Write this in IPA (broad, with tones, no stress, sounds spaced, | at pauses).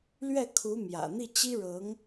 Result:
l ɥ ɛ˥˩ kʰ u˧˥ m j ä̰˨˩ n̪ i˥˩ t͡ɕ i˥ ɻ ɤ˧˥ ŋ